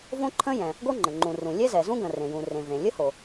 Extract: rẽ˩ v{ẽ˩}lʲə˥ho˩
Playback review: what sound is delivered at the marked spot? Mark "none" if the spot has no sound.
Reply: ẽ˩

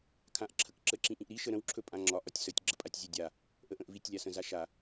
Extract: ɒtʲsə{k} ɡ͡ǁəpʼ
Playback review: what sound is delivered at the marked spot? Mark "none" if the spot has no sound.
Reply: tʲ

